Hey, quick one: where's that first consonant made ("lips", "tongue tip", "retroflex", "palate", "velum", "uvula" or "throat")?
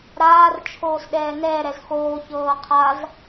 tongue tip